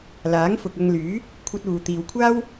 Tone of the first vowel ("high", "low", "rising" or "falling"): rising